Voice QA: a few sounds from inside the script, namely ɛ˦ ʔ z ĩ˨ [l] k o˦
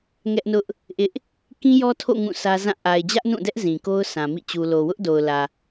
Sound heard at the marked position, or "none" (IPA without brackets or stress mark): none